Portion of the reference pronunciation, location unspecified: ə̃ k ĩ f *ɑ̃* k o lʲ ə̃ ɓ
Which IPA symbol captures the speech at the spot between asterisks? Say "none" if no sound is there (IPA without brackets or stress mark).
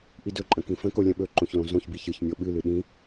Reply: ə̃